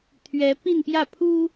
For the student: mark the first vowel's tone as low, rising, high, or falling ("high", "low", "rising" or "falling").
rising